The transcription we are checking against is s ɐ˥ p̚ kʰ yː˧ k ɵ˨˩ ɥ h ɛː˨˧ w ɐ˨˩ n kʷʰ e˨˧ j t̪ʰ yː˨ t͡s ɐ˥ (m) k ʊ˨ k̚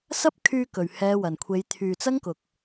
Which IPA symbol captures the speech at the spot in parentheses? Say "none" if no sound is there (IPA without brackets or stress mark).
ŋ